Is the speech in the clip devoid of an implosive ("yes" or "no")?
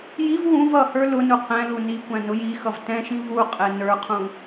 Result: yes